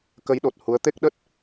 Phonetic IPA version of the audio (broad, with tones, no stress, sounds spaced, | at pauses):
k ə˨˦ j ɗ o˨˩ t̚ h u˨˦ ə̯ t̪ e˦˥ k̚ ɗ ə˦˥ t̚